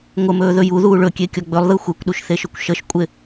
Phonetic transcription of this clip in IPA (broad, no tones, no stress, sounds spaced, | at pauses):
ŋʷ ə m ɵː ð ɵ j u ð uː ɭ ɵ kʲ e kʲ ɔ ɡ͡b ɵ lˠ ð ɯ xʷ e kʷ ɗ u ʃ θ e ʃ ɵ kʷ ʃ ə ʃ kʷʼ ɪ